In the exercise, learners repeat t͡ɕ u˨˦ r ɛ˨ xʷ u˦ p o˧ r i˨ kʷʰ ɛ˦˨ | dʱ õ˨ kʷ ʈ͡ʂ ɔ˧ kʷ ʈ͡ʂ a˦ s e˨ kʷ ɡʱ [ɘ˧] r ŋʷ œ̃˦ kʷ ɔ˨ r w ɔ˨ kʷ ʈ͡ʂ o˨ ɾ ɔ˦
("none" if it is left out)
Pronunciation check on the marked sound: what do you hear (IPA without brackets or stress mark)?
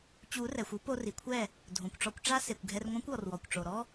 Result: ɛ˧